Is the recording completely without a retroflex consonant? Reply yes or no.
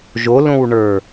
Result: no